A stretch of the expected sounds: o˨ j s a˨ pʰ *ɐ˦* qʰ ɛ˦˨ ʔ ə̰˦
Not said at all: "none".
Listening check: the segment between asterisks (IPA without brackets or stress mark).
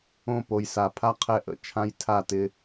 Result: a˦